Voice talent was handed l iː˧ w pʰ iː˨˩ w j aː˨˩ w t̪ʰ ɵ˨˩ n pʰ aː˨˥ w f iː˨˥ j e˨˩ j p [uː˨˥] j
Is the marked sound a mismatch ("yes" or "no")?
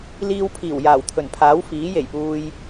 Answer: yes